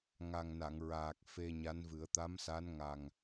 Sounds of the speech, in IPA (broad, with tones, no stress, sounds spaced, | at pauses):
ŋ a˨˩ ŋ n a˨˩˨ ŋ ɹ aː˨˩ k̚ f e˧ ɲ a˧˥ n v ɨ˨˩˦ ə̯ t̪ a˧˥ m s a˧˥ n ŋ a˨˩ ŋ